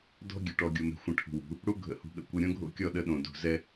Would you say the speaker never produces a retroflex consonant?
no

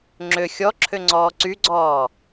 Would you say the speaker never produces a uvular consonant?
yes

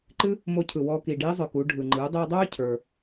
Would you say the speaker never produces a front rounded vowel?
no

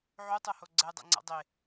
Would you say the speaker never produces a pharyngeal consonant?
no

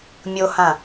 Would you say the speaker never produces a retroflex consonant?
yes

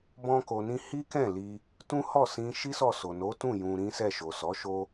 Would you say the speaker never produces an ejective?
yes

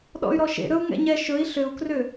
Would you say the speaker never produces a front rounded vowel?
no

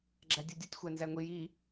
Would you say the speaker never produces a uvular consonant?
yes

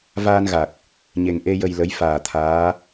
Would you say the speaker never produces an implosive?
yes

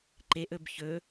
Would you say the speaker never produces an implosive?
yes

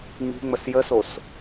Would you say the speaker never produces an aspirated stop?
yes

